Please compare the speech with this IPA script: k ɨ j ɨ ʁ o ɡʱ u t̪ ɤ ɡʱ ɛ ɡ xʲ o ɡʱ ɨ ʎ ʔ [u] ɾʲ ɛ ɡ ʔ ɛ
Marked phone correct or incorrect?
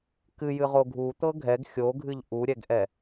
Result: correct